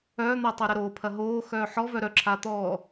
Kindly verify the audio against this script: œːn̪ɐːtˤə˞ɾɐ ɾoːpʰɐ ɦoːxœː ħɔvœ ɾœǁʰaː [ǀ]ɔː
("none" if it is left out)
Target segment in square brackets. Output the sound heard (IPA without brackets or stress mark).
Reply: t̪